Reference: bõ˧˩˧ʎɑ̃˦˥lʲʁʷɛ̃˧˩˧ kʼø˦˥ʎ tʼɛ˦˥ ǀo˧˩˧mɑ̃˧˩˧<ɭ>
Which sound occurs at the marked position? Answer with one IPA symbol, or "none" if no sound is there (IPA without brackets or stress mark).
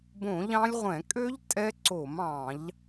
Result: ʎ